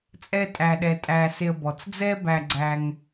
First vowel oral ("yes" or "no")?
yes